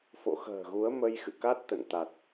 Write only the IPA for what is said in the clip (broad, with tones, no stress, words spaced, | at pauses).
fo̰˧˨xə̤ː˨˩ɣu˨˦ə̯ mə˧jxɨ̰˧˨ ka˦˥t̚t̪ə̰˧˨nt̪a˨˩t̚